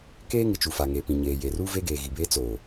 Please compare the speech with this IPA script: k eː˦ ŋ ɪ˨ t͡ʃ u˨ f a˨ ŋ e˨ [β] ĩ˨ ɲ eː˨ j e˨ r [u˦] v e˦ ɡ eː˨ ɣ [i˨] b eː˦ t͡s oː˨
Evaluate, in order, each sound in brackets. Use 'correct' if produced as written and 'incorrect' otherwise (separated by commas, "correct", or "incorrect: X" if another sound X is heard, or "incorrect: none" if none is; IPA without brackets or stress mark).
incorrect: p, correct, correct